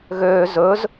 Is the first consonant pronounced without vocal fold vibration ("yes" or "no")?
no